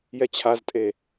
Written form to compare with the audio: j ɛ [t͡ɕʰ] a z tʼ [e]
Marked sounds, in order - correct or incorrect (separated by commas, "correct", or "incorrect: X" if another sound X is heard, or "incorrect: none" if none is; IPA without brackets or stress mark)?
correct, correct